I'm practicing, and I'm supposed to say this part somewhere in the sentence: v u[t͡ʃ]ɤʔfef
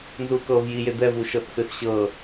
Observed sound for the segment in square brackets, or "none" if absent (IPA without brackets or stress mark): ʃ